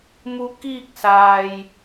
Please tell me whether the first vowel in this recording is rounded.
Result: yes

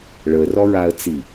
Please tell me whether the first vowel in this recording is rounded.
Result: no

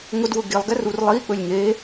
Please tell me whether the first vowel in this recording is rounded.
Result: yes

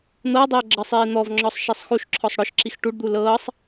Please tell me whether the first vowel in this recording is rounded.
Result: no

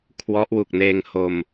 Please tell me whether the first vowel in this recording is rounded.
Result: yes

